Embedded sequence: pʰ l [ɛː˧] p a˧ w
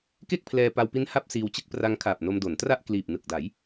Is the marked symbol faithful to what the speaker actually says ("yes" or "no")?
yes